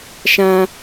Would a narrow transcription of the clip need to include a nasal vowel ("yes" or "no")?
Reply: yes